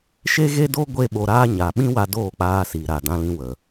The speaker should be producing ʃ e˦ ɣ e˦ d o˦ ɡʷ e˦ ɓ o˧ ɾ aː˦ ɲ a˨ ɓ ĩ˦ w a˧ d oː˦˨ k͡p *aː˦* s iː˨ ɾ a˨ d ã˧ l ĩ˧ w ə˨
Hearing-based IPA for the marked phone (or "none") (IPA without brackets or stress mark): aː˧